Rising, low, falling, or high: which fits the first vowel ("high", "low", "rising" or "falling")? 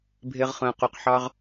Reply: low